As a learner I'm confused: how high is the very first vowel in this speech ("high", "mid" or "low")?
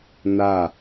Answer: low